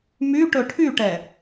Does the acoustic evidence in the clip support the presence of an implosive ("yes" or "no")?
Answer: no